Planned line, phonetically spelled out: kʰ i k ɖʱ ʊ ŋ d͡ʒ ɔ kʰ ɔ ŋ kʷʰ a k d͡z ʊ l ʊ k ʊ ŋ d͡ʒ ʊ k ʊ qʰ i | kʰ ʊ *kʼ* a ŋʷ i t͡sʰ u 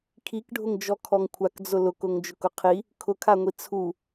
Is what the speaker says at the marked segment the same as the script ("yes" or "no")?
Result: no